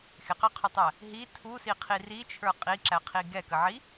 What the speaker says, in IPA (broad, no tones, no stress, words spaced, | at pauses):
xɪqɑqʰʊtˤæ | ɦi tʰusiqʰi rit͡ʃʰə˞ qʼiǁæqʰi ɡɛkəʕi